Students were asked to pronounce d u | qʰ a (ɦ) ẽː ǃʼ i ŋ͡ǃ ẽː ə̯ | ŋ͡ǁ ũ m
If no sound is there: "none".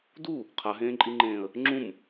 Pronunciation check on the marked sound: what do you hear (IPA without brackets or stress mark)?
ɦ